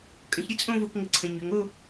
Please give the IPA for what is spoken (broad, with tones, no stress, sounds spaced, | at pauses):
kʼ ə̃˩˧ ç ɾʲ ɘ˥ t͡sʼ õ˥˧ v o˥˧ k ŋ ɘ˧ ǀʰ ə̃˩˧ ɲ ʏ˩˧ ŋ o˥˧